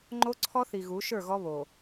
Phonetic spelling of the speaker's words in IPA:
ŋ͡ǃ o˦ ǀʰ ɔ˦ θ i˨ ɣ u˨˦ ʃ ə˞˦˨ ɣ ɔ˦ β o˨

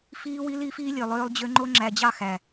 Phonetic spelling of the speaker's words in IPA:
f iː˦ w i˦ l iː˦ f iː˦ lʲ ø˨ lˠ øː˦ lˠ d͡ʑ ø˦ ŋ͡ǃ o˦ ŋ͡ǁ æ˨ d͡ʑ ɑ˦˨ x æ˨

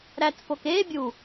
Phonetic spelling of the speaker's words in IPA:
ɾ æ t f o k e bʲ u

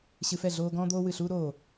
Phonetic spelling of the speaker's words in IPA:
ɕ ɨ˧ f ɛ˥˩ ɮ oː˥ ɡ ɔ̃ː˥ d̪ oː˥ w ɨ˥˩ ɬ uː˥ ɾ oː˥˩

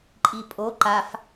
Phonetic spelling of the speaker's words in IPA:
ǃʼ i pʼ o ǃ a f

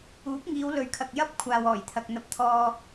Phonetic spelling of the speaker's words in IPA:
uː˨˥ p̚ ŋ iː˨˧ w l ɵ˨ ɥ kʰ ɐ˨ k̚ j ɐ˥ p̚ kʷʰ aː˨ w ɔː˨˩ j t̪ʰ ɐ˨ k̚ n̪ ɐ˧ p̚ t̪ʰ ɔː˧

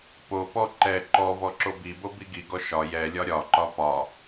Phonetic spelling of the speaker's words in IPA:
p o p ɔ ǃ ɛ ǃ ɔ v ɔ ǁ o b i b o b i ɡ i ɡ ɔ ʃ ɒ j ɛ lʲ ɒ ɾʲ ɒ ǃ ɒ p ɒ

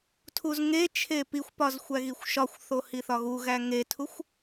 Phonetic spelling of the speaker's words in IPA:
tʰ u z ŋ e t͡ʃʰ e p i xʷ p ɒ z xʷ æ ɣ i xʷ ʃ ɒ xʷ θ o h i θ ɒ ɣ u ɣ æ ŋ e tʰ u xʷ

